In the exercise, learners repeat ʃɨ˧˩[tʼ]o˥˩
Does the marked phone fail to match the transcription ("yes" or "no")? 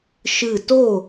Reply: yes